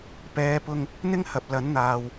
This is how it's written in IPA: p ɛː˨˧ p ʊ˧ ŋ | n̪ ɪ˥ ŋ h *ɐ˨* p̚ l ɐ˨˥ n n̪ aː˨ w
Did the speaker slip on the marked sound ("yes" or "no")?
no